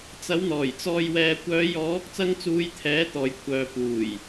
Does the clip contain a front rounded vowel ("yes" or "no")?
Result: yes